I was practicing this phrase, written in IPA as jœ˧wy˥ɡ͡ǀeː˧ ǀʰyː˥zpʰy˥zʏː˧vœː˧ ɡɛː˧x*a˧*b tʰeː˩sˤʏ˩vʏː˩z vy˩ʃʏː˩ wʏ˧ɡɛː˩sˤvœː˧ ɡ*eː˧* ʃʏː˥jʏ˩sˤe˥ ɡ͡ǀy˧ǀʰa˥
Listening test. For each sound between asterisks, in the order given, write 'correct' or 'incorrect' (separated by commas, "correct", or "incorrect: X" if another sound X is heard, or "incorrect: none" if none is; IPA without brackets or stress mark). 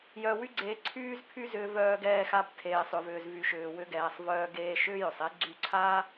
correct, correct